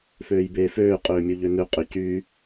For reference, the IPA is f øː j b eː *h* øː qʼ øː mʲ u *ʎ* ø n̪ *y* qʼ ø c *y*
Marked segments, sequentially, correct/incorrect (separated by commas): incorrect, correct, incorrect, correct